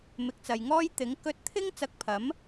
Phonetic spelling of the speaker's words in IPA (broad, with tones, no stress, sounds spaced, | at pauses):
m ɪ˨˥ k̚ t͡s ɐ˨ j ŋ ɔː˥ j t̪ ɪ˨˥ ŋ k ɵ˧ t̚ t̪ʰ ɪ˥ ŋ t͡s ɐ˧ k̚ pʰ ɐ˨˥ m